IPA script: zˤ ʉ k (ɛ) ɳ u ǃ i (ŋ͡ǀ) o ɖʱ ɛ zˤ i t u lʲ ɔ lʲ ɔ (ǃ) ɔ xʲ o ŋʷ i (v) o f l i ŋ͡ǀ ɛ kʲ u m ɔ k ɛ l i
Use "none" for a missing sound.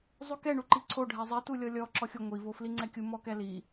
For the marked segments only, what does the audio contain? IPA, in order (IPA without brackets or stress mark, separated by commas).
ɛ, ǀʰ, ǁ, v